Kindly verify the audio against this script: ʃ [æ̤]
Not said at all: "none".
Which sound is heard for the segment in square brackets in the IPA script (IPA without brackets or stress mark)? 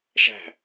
æ̤